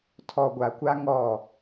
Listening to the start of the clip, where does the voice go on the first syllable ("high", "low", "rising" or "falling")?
low